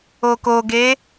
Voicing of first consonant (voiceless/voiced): voiceless